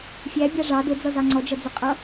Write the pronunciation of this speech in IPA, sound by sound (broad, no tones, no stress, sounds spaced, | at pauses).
fʲ æ bʲ ɑ ʐ ɑ d ʊ d͡z ʌ z ɑ ŋ͡ǀ ɔ d͡ʒ ʌ d͡z ə qʼ ʌ